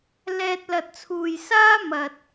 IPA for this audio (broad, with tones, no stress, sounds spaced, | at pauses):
l ɛː˧ t̚ l ɐ˨ t̚ t͡sʰ uː˨ j s aː˥ m ɐ˨ t̚